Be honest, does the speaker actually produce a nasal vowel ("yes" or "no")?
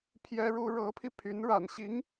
no